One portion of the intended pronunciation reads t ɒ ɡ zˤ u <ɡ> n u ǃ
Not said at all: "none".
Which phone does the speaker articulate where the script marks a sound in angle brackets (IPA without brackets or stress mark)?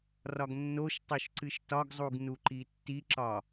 ɡ